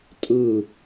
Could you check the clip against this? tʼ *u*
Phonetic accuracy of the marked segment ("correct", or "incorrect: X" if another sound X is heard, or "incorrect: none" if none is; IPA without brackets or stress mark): incorrect: ɯ